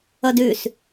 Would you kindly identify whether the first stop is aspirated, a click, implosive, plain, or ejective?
plain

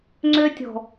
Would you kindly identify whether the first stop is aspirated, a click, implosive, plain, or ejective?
click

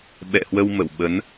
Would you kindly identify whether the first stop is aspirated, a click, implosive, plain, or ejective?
implosive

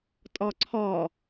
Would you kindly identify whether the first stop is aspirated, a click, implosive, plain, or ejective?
ejective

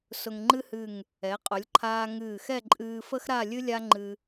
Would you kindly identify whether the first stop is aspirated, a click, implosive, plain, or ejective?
click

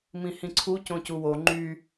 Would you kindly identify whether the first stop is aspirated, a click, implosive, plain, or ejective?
click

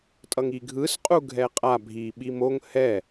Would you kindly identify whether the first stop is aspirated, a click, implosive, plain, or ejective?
ejective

